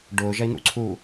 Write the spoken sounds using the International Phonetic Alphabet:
ɖ ʊː ʒ ɐ i̯ n̪ ṵ ǀʰ uː

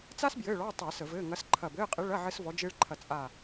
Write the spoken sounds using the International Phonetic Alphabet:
t͡s a˥ s b j ɘː˧˥˧ ɭ ɔ˧˥˧ tˤ ɪː˧˩˧ s ə˧˩˧ v ɘː˧˥˧ ŋ ɐ˧˥ s ǃʰ ɐ˦˨ b ɘː˧˥˧ qʼ ɪ˧˥ ɭ ɐ˧˥˧ ʕ ɘ˥ s v ɔ˧˥ d͡ʒ ɪː˥ ɭ ǃʰ ɐ˦˨ t͡sʼ a˦˨

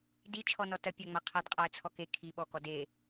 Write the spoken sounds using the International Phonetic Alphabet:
d i t͡ʃʰ ɔ n ɔ t ɐ pʲ a ŋ͡m a qʰ a d qʼ a ə̯ t͡sʰ ɔ k e kʰ i ɓ ɔ k ɔ d e

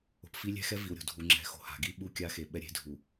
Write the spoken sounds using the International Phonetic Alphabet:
o̤˨ p f i˦ lʲ ɛ̤˦ x ɛ˦ v i˨ w ɾʲ o̤˨ dʱ u˨ ŋ͡ǁ ɛ̤˨˦ x o̤˨ h a̤˨ ɡ i˦ ɓ u˦ kʲ a˦ x e˨ ɓ ɛ˦ ɾʲ e̤˦ dʱ u˨

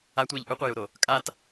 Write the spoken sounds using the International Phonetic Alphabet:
a tʷ eː ʎ ʔ u qʷ œ j u ɾ o | kʼ a t

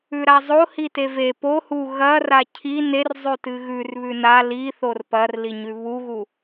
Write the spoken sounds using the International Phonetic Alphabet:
ʉ ɾ a zˤ o h i t e v e p o h u ɣ ɐ r a cʰ i n e r zˤ ʉ t ɨ ɣ ʉ r β ʉ n a l i θ o r p ɐ r l i ɲ ʉ β u ɣ u

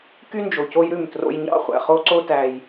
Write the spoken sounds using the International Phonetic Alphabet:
k y˦ n d͡ʒ o˨ c o˦ j ɾ ʉ˦˨ m t r o̰˦ j ɲ ɑ̰˦ χʷ æ̰˨ χ o˦ ǀ o˦ t æ˦ j

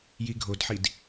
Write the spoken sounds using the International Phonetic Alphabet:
j i ɡʱ o d ħ i d

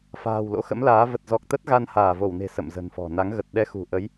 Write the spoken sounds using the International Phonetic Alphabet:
f a̤ː˨˩ w l o̰˧˥ x ə̰˧˥ m l aː˨˦ v ə˨˩ t̚ z ɔ˨˩ k̚ t̪ ə˦˥ t̚ ɣ a˧ n h aː˧˩ v o˧˩ w n e̤˨˩ s ə̰˧˨ m z ə̤˨˩ n f ɔ̤˨˩ n a˨˦ ŋ ɣ ə˨˩ t̚ ɗ ɛ˧ x ṳ˨˩ ʔ ə˨˦ j

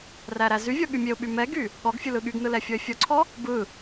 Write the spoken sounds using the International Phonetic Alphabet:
r æ ɾ æ z y vʲ ɔ ɠ y mʲ e ʊ̯ ɓ y m ɛ ɡ y | ɠ ɔ ɡ fʲ ɯ l ɯ ɠ y ɡ n ɯ l ɛ fʲ ɔ ɪ̯ fʲ ɔ ǀʰ ɔ | b ɯ

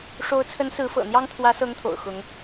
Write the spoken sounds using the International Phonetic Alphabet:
ʂ o˧˥ ʊ̯ t͡sʰ ə˧˥ n s ɹ̩˧˥ f ɤ̰˨˩ n̪ j ɑ˥ ŋ t̪ʰ w ä˧˥ s ɤ˧˥ ŋ t̪ʰ o̰˨˩ ʊ̯ x ʊ˧˥ ŋ

